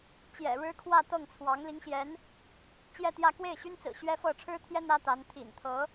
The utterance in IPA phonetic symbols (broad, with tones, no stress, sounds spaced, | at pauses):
t͡ɕ j ɛ̰˨˩ ɻ ɻ̩˥ kʰ w ä˥˧ t̪ ɤ˥˩ ŋ t͡sʰ w ɑ˧˥ ŋ l i˧˥ ŋ ɕ j ɛ˧˥ n | t͡ɕ j ɛ˥˧ t̪ j ä˥˧ k w e˥˩ ɪ̯ ɕ y˥ n t͡s ɹ̩˨˩ ɕ ɥ ɛ˥ f ɤ˥˩ ʈ͡ʂʰ ɻ̩˥ t̪ʰ j ɛ˥ n̪ ä˥ t̪ a˧˥ n t̪ʰ ḭ˨˩ n t̪ʰ ɤ˧˥